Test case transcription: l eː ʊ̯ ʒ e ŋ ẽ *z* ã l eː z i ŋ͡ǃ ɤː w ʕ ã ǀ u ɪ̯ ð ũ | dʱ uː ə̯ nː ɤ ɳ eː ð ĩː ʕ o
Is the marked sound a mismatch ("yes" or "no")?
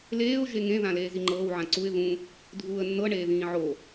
yes